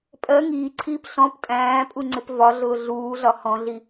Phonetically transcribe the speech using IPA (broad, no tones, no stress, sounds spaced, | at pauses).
pʼ ɜ ŋ iː ǀʰ iː p ɬ ɔ̃ p tʼ æ̃ː pʼ u ŋ͡ǀ ɪ p v ɒ ɮ ʊː ɮ uː ɮ ɒ h ɔ̃ ɮ i